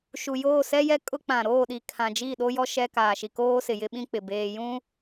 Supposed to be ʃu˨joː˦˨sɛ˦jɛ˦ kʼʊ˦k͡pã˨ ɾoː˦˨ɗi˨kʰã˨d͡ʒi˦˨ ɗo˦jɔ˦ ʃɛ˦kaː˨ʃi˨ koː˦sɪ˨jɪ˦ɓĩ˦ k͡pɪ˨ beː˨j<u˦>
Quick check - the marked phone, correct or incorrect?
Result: incorrect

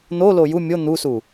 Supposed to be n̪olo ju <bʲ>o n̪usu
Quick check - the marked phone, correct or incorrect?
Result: incorrect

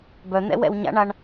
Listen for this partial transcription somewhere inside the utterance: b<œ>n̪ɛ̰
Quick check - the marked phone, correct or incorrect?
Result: correct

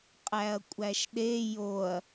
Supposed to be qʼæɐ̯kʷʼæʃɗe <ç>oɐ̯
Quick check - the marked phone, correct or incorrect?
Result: incorrect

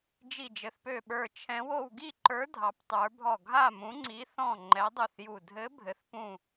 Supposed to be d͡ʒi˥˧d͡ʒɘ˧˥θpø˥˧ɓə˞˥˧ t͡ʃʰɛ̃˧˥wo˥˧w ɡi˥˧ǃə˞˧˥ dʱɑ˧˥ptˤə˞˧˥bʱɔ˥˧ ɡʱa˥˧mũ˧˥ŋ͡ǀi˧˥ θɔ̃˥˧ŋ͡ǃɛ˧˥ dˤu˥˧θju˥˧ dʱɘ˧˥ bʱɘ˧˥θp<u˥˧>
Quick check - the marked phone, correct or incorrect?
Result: incorrect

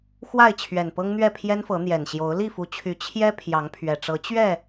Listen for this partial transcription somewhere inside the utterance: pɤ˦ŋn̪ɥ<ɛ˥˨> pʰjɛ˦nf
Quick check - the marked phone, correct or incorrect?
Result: correct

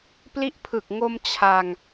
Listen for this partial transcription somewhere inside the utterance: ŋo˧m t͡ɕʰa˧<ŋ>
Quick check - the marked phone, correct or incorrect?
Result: correct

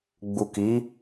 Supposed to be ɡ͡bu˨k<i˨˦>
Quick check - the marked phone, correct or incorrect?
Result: correct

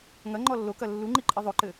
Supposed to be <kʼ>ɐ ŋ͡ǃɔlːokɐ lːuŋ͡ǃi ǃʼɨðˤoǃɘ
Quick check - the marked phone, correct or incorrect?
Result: incorrect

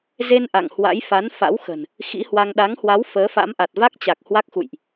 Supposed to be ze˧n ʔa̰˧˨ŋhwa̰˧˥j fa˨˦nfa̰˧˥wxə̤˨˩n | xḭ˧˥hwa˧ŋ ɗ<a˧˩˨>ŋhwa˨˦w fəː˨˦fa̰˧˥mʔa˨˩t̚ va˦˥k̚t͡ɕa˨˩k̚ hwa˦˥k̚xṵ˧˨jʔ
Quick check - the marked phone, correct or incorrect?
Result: incorrect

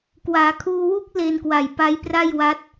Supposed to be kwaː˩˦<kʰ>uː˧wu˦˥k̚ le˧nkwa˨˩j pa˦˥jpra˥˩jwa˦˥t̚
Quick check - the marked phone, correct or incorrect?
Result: correct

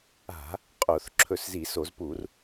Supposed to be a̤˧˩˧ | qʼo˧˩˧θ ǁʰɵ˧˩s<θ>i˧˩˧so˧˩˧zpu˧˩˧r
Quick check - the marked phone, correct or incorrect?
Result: incorrect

